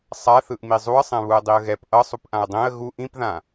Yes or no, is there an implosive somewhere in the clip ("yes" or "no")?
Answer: no